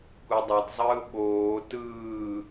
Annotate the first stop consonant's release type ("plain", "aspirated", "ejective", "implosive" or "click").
plain